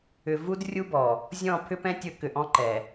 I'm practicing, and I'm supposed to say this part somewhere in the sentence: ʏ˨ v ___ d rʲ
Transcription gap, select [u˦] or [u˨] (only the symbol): u˦